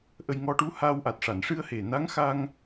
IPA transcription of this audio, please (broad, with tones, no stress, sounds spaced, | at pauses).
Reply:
ʔ ə˧ j ŋ ɔ˧ ʈ u˧˥ h a˧ w ʔ a˨˩ t̚ ʂ a˨˩˨ n ʂ ɨ˧ ə̯ h e˨˩ n a˧˥ ŋ x a˧ ŋ